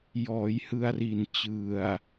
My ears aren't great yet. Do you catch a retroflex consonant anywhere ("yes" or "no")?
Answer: no